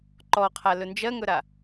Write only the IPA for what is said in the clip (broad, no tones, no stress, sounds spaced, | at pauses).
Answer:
ǃ ɔ qʰ a l ɵ n d͡ʒ ɜ ŋ ɵ ɾ a